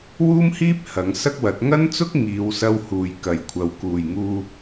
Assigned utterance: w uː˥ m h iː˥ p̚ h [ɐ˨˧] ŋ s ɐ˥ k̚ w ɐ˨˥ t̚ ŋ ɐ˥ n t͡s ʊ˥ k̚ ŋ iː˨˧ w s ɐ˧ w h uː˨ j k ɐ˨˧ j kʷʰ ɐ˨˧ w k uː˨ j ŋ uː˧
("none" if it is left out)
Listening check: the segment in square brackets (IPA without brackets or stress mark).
ɐ˨˧